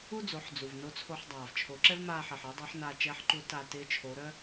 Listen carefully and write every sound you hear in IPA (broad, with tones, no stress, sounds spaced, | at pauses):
u˥ d͡z o˩˧ ħ d͡z u˩ v n o˧˥ t͡sʰ o˧ ħ dˤ aː˩ v t͡ʃʰ o˩˧ ǁ ɛ˥ v m aː˧ ħ ɪː˩ ħ ɪː˧˥ dˤ ɪː˧˥ ħ n aː˧ t͡ʃ ɛ˧˥ ħ ǃ u˧˥ t a˧ t ɪː˧˥ t͡ʃʰ o˩˧ ɾ œ˥